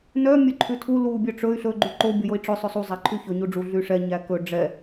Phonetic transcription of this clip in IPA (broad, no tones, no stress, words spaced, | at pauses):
nœ mʲœǃʰʉtʰu lu bʲœʈ͡ʂɵy̯ ɬɵ ɡ͡ǃyǃo bʲojoi̯ʈ͡ʂɵ sˤɵsˤu zˤæǃʰyçɵ ɲuɖ͡ʐu ɮyʂɛ ɲækɵ ɖ͡ʐɛ